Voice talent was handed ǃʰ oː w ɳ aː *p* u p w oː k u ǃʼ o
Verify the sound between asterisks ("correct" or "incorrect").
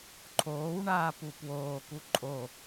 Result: correct